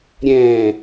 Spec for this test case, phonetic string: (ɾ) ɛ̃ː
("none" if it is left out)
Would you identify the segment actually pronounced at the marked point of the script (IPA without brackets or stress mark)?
ɾʲ